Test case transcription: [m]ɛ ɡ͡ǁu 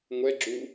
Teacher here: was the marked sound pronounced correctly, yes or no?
no